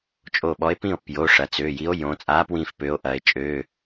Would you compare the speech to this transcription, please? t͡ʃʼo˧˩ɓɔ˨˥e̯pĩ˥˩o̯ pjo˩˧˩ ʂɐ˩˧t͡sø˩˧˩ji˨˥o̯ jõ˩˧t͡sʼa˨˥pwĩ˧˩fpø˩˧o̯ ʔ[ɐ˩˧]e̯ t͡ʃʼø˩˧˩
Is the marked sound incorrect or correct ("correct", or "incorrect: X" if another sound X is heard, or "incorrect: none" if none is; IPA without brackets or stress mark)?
correct